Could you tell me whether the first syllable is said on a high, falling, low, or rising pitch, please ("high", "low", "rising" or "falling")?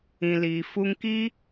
low